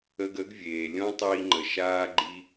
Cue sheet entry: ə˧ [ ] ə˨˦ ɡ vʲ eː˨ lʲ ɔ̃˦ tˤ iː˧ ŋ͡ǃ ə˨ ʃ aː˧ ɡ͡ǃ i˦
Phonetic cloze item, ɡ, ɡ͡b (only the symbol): ɡ